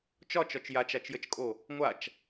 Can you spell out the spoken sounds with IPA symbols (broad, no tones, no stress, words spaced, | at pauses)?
t͡ʃɒt͡ʃɒt͡ʃ jat͡ʃat͡ʃjət͡ʃkʼo | ŋʷat͡ʃ